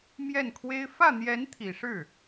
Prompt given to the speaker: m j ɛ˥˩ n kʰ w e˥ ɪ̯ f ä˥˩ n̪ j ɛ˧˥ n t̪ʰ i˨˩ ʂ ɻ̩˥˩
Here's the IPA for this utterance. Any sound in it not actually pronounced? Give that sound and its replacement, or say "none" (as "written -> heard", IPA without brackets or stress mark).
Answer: none